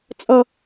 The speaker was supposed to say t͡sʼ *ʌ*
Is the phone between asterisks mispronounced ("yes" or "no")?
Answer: no